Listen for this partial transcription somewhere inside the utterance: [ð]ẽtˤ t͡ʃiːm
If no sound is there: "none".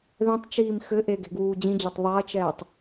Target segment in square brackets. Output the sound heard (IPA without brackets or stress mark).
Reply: ð